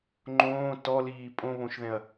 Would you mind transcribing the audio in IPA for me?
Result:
ŋ͡ǃ õː t ɔ l iː pʼ õ β õ ʃ ð ɛ̃ ɐ̯

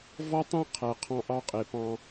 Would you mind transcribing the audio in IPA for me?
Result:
v ɔ˦ tˤ æ̃˦ qʰ æ˨ qʰ ɑ̃˦ ʔ ɑ˦ qʼ e˨ p ɑ̃˦

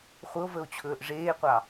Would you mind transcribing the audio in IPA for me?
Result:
χʷ ə o̯ v ə o̯ t͡ɕʰ ɵː ʔ ʐ eː qʷ ɑ

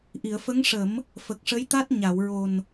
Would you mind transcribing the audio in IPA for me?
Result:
ʔ i˨˩˨ ə̯ f ə˧˥ ŋ ʂ ə˨˩˦ m | f ə˨˩ k̚ ʂ ə˧˥ j t̪ a˦˥ t̚ ɲ a˨˩˨ w ɹ o˨˩ n

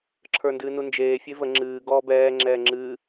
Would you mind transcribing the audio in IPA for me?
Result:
ǁʰ ə˞ n d ɨː n u n d͡ʒ eː fʲ e v ə ŋ͡ǁ ɨː ɡ ɔː b ɛː ŋ͡ǁ ɛː ŋ͡ǁ ɨ

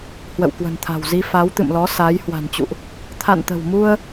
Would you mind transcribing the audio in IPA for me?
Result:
h w ə̰˧˨ w k w ə̤˨˩ n t̪ʰ a̤˨˩ w z i˧ f a˨˦ w t̪ ɨ̰˧˨ m l ɔ˨˦ s aː˨˦ j h w a̤˨˩ n t͡ɕ ṵ˧˨ ʔ | t̪ʰ a̰˧˨ n t̪ ə̤˨˩ w m u˧ ə̯

